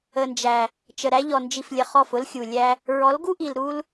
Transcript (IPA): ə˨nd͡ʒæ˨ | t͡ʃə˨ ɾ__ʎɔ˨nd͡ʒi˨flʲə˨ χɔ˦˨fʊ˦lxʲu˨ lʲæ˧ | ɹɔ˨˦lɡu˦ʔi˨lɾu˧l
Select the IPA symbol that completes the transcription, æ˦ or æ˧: æ˧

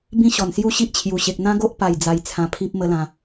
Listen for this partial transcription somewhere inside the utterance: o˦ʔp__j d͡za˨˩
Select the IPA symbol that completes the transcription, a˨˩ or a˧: a˨˩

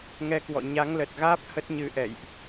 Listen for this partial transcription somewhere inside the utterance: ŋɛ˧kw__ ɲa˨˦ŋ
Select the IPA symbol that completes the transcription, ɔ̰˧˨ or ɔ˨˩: ɔ̰˧˨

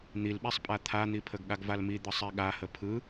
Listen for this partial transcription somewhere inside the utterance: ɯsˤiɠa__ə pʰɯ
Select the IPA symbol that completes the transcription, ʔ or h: h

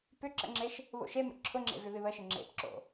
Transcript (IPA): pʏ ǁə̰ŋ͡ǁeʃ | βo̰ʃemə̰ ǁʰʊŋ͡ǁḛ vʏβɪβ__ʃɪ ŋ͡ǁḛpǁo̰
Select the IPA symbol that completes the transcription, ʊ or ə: ə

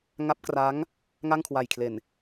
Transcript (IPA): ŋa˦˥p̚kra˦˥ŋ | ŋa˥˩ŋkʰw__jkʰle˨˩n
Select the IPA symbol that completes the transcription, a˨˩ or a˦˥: a˨˩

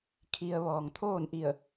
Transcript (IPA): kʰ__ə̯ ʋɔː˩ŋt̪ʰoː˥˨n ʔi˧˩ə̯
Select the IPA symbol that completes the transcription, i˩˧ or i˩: i˩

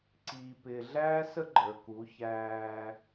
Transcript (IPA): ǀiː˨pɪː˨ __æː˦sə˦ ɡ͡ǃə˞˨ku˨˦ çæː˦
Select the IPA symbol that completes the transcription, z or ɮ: ɮ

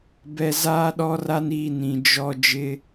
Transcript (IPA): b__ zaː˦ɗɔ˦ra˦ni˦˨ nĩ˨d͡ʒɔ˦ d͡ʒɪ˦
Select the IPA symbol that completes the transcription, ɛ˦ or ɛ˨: ɛ˨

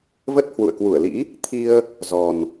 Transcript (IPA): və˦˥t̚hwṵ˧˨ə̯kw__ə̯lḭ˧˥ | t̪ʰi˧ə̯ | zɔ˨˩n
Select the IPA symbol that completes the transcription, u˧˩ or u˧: u˧˩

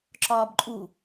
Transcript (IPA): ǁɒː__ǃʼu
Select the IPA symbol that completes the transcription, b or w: b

